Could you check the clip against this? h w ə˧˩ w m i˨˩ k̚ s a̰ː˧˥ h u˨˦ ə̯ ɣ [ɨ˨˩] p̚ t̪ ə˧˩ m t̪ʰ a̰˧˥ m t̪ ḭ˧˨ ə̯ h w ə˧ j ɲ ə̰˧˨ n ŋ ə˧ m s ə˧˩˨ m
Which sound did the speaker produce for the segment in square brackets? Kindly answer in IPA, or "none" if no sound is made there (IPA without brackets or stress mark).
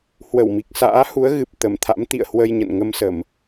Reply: ɨ˨˩